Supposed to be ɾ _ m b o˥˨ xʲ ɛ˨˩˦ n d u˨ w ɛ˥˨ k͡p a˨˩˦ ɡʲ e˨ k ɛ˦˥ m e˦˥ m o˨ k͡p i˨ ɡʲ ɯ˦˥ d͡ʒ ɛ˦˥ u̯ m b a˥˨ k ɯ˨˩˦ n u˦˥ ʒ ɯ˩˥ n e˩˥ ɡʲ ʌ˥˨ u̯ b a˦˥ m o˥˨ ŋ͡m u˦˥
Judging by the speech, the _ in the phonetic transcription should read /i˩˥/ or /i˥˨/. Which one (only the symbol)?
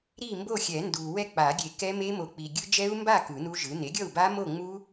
i˥˨